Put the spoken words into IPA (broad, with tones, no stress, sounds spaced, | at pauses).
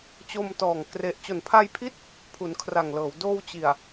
t͡ɕ o˧ m t ɔː˨˩ ŋ k r e˨˩ ʔ t͡ɕ o˨˩ n pʰ a˧ j pʰ i˦˥ t̚ | pʰ u˩˦ n kʰ r a˨˩ ŋ l ɤː˩˦ w d oː˧ w t͡ɕ i˨˩ a̯